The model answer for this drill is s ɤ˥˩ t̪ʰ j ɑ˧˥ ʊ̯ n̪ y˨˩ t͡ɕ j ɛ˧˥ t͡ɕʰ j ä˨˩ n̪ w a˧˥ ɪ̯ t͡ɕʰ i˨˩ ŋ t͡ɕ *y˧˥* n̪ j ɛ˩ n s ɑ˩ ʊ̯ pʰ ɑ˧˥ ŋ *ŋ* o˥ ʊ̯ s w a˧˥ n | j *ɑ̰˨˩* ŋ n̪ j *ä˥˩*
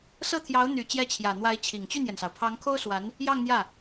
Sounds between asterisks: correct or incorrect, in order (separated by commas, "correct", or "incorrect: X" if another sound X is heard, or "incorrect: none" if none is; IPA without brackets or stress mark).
incorrect: y˥˩, incorrect: kʰ, incorrect: ɑ˥˧, correct